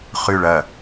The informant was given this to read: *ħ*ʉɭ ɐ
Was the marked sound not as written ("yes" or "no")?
yes